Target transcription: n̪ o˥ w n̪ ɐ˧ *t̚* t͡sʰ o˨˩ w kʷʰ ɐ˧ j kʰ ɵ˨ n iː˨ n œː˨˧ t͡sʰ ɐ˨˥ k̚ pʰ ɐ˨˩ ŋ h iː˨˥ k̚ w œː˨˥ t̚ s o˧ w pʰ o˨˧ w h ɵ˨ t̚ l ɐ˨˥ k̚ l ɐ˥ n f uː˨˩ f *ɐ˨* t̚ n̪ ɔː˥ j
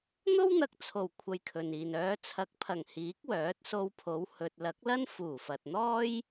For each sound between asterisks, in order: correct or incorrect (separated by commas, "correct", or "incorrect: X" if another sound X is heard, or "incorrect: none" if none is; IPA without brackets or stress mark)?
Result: incorrect: k̚, correct